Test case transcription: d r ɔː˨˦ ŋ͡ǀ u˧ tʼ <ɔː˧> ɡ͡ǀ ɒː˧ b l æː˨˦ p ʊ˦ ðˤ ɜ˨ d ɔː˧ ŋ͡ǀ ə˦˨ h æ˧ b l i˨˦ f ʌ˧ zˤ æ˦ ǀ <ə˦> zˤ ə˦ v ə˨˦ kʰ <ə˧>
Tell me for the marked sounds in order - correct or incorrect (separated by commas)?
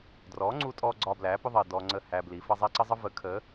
correct, correct, incorrect